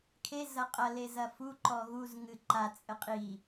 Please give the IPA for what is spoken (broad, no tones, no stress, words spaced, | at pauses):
kʰe zɐqʼɐ lezɐfu ǃɔɣuz ŋɨǃa t͡sʼɘqʼi